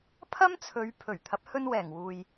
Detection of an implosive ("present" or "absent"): absent